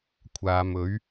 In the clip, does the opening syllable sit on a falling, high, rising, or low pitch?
low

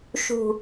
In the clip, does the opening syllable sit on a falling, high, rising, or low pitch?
low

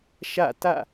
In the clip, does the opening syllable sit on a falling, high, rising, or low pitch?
falling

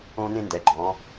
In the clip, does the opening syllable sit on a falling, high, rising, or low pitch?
high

